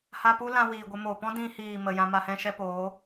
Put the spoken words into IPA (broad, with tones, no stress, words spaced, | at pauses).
ha˧pu˦lã˧ wiː˨ɡʷə˧moː˨ pɔ̃˦dĩ˧hiː˨ mə˨jã˧ ma˧hɛ̃˦ʃɛ˦ poː˨˦